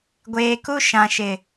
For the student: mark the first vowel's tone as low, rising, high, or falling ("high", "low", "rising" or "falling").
low